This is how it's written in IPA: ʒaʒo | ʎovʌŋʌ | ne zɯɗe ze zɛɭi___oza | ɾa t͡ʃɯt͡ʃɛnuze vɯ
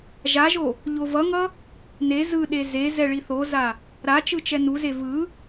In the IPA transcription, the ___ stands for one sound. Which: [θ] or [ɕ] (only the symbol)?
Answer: θ